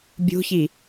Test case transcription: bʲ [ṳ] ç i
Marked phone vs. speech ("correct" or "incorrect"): correct